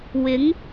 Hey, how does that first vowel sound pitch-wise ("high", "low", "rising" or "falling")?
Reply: rising